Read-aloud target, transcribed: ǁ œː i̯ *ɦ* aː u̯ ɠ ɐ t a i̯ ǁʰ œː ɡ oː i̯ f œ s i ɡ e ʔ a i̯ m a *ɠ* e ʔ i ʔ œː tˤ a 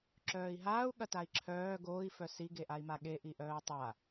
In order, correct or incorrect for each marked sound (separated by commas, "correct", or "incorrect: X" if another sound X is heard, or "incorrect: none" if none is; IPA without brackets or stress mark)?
correct, correct